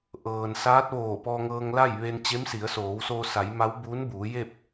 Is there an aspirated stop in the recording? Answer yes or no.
no